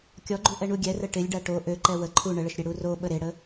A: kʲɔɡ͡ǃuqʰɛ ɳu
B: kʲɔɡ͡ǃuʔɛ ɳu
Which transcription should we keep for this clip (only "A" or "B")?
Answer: B